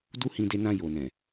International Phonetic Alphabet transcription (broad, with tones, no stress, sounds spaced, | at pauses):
d u˦ h ĩ˧ d e˧ n ã˧ j o˨ n ɛ̃˨